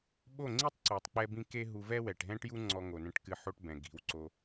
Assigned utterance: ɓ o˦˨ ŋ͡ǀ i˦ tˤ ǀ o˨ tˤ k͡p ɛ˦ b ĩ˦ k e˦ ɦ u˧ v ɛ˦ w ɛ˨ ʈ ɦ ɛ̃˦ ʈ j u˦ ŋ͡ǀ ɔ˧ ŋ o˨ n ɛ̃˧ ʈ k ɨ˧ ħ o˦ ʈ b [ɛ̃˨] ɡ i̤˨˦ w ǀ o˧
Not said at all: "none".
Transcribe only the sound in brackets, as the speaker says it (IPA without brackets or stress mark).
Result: ɛ̃˨